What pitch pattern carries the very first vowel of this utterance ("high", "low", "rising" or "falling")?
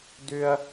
high